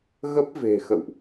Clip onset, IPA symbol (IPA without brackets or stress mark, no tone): ɣ